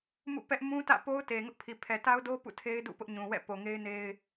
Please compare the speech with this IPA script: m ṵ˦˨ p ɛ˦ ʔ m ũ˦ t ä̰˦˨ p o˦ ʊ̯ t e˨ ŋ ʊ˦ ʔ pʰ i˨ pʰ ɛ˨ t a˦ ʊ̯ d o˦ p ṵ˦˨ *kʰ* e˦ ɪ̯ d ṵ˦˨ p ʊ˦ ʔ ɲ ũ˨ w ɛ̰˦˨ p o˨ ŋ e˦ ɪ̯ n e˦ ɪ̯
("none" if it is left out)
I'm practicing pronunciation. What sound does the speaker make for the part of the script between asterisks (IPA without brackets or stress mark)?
tʰ